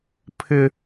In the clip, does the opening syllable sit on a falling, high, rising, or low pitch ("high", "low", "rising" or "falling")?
high